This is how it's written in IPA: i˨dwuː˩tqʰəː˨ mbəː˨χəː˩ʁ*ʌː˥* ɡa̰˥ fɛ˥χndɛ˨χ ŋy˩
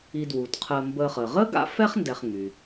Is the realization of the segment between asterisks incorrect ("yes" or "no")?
yes